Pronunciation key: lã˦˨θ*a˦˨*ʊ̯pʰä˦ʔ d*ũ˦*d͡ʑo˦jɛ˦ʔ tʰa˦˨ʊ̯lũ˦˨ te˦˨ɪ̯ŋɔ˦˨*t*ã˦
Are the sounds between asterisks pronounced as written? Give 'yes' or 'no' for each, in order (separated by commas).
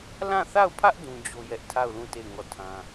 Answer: yes, yes, no